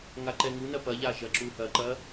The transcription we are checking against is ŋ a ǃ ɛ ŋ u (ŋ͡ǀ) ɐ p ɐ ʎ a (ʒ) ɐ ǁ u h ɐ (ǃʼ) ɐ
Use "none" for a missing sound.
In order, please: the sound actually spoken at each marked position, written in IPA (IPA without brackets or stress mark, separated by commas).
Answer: n, ʒ, ǃ